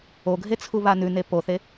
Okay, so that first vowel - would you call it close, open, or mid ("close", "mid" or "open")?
mid